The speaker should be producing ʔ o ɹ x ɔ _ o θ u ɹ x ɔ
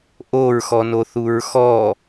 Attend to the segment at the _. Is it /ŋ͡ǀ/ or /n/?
n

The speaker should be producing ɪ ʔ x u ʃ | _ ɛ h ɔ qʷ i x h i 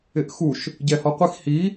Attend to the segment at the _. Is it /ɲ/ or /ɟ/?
ɟ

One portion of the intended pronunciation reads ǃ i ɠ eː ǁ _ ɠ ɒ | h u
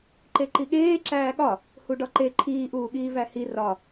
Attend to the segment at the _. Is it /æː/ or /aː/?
æː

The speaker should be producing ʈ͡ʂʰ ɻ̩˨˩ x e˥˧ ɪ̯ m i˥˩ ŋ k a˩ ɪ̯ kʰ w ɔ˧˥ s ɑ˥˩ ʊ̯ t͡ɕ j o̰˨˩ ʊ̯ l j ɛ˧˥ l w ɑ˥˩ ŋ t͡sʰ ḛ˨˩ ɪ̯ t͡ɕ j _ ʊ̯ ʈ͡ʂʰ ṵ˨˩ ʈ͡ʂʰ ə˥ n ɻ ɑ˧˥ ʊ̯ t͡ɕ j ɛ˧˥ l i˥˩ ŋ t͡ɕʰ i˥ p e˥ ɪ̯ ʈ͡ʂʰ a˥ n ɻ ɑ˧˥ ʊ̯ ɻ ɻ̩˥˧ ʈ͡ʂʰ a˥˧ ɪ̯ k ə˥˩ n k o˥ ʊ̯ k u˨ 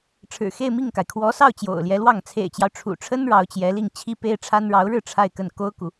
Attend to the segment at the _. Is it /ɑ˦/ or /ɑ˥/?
ɑ˦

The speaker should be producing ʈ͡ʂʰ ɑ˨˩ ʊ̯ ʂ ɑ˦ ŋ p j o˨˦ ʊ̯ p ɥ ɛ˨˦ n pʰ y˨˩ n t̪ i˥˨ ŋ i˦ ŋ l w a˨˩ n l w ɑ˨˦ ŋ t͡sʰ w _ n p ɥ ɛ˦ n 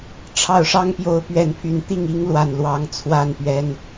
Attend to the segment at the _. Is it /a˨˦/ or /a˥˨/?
a˥˨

